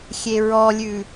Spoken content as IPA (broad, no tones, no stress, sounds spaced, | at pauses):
xʲ e ɹ ɔ lʲ ʉ